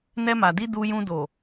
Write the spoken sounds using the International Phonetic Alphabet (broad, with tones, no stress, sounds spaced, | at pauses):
n ɛ˧ m a˨ d i˧ d u˧ j ũ˧ d o˨